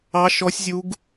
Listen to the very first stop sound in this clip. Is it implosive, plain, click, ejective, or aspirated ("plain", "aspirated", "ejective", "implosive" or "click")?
plain